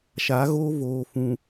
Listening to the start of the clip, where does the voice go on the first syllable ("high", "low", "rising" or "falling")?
rising